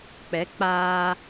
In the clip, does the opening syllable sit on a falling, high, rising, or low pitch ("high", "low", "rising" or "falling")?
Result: rising